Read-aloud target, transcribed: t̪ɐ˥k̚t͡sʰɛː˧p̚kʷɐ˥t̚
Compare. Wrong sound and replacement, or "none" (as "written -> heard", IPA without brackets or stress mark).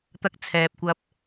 t̚ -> p̚